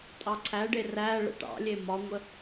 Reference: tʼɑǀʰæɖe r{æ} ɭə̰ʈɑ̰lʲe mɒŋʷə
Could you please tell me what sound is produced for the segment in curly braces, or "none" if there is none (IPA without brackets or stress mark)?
æ